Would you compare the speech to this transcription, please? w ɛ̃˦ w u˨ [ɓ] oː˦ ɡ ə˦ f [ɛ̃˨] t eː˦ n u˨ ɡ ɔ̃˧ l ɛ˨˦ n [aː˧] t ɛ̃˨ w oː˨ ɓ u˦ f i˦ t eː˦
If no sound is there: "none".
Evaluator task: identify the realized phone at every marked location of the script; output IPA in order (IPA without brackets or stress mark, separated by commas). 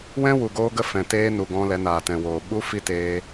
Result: ɡ, ɛ̃˨, aː˨